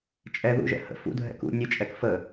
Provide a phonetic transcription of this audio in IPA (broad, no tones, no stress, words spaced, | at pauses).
t͡ʃʼɛ ðṵʒɛ̰ hə̰ fṵdʱɛ̰ kṵ nʲət͡ʃʼɛk fə